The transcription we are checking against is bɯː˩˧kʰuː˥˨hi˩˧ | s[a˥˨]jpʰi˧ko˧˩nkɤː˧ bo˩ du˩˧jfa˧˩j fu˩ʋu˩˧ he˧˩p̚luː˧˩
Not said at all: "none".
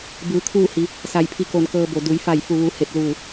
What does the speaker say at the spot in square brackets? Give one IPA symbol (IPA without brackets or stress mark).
a˧˩